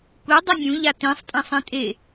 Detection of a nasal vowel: present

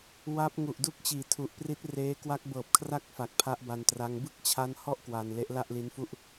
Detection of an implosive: absent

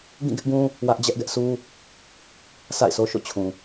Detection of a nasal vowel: present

